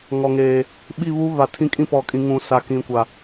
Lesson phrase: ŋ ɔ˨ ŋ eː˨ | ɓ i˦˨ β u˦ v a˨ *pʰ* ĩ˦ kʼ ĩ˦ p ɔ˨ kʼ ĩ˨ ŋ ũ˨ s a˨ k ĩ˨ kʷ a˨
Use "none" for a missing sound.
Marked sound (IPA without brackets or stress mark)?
tʰ